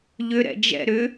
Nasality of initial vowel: oral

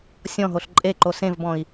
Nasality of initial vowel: nasal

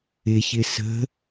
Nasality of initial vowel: oral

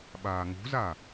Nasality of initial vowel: oral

